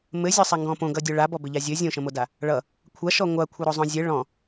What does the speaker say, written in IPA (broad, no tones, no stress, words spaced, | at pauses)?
mɘzʲɔsˤaŋɡɔ̃ põɡʌdʲo ɭabɔbɘʎa zʲɘ zʲõʃə̃moda | ɭʌ | kʷʰaʃɔ ŋʷakʷʰʌɾozˤõ zʲɘ ɭɔ̃